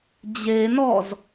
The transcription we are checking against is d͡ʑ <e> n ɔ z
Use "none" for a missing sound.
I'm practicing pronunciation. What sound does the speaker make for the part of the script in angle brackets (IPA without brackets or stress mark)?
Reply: e